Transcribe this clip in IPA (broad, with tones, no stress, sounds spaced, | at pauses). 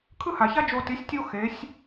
kʰ ɯ˦ h a˨ ç a˦ d͡ʒ o˧ t i˨˦ sʲ tʲ o˦ x e˨˦ sʲ